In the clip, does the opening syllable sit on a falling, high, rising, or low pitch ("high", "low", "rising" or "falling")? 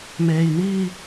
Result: low